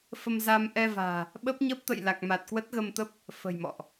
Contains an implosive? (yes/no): yes